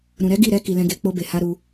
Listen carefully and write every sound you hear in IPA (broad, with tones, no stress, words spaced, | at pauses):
ɾũ˨ɾɛ˨˦ ɡi˦˨ ɾɛ˧ ki˨ lɛ̃˧ɡe˧ k͡po˧be˨ ha˧ɾu˧